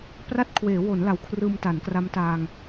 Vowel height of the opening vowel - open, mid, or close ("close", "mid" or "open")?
open